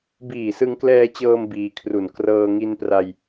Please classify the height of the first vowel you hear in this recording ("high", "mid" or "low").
high